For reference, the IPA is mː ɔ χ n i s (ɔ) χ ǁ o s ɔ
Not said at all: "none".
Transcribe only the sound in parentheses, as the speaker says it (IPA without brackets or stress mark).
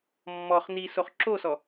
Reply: o